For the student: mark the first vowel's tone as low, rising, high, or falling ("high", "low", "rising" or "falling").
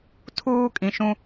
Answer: low